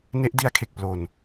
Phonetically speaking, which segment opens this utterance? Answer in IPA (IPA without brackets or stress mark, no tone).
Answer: n